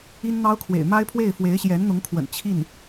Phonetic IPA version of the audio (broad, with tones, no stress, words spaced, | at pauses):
i˥nn̪ɑ˥ʊ̯kʰwḛ˨˩ɪ̯ ma˥ɪ̯pʰwe˥˩ɪ̯ fwe˧˥ɪ̯ɕjɛ˧˥nn̪ʊ˧˥ŋkʰwə̰˨˩n t͡ɕʰi˥˩n